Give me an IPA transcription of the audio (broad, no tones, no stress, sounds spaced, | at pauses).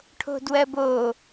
ʈʰ o̤ d w ɜ b o